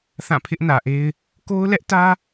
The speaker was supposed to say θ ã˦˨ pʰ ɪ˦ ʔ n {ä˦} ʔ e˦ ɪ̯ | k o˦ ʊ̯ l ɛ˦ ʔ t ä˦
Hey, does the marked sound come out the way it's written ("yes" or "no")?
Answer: no